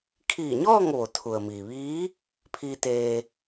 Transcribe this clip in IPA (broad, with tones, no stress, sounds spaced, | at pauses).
kʰ iː˧˩ ɲ ɔː˥˨ ŋ ʋ o˩ t̪ʰ u˩ ə̯ m iː˩ ʋ iː˧˥ | pʰ iː˧ t̪ eː˧